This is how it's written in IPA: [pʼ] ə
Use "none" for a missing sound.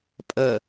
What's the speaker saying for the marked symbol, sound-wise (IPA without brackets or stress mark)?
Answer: pʼ